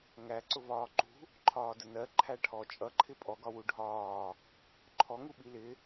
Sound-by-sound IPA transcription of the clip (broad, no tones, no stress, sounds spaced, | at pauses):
ŋ æ ǀ ʊ v ɒː ǃ ṳ | ǃʰ ɒː d ə n ɜ ǃʰ æ ʈʰ ɔ t͡ʃʼ ʌ ǃʰ ɪ pʼ ɔ ɡ ɒ w u ɖʱ ɒː | ǃʰ ɔ ŋ u ɓ i l ɪ